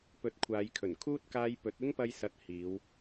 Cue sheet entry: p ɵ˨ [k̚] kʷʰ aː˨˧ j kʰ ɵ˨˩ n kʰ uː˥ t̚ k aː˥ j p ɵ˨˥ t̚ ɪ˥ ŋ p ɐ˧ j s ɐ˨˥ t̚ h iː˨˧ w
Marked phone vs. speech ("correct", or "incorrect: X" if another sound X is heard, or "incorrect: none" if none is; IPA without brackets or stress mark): incorrect: t̚